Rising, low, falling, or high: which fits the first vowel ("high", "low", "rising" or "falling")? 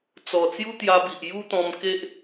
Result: low